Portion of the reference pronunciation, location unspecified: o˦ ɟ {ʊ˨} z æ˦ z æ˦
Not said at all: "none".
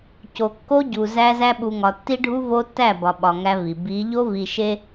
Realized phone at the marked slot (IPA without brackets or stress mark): u˨